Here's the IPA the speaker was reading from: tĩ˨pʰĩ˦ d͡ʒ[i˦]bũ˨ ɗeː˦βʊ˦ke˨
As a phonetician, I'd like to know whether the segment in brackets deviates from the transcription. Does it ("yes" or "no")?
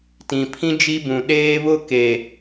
no